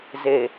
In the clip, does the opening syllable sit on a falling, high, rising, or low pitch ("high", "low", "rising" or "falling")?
low